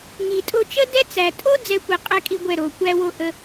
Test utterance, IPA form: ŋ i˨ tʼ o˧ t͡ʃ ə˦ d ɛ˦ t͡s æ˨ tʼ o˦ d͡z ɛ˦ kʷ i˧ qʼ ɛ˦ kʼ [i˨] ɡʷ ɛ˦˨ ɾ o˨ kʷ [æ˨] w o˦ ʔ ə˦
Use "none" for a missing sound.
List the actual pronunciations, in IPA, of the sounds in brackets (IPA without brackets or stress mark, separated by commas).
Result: i˦, æ˦